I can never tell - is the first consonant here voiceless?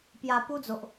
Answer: yes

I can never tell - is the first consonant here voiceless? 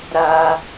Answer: no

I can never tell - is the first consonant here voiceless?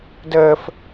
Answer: no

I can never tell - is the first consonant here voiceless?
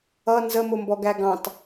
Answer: no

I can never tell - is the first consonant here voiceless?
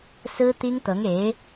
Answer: yes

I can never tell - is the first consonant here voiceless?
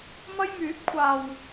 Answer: no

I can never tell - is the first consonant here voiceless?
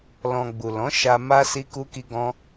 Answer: no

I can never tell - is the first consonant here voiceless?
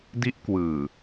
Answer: no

